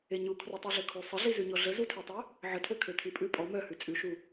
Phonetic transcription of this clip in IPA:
eɲu kʰrotˤiɮøkʰu sˤəɮizʉɲɔ ɮəzutʰøtˤø | ʕətʰøkʰø tʰipʼʉ pʼɔ mœhʉ t͡sʼʉʃu

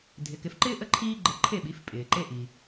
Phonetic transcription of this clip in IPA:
dʱɪ˩˥kɪ˩˥fǃɪː˥ ʔə˥ ǃʰiː˥ɡ͡ǃə˧ ǃʰe˥˩ɓi˩˥fpʼɪː˩ ǃe˧ʔi˩

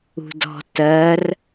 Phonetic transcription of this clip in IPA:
ṳdɔ̤ tɜr

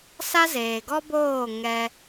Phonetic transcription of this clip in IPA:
sa˦zeː˨ɡɔ˦boː˦˨ ŋɛ˧

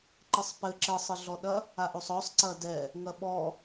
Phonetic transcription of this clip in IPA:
ǃɨsˤpɘ ǁɘsˤɨɮɔɗɐ | aʔosˤɔsˤ ǀɐdɛ | ŋɐɓɔ

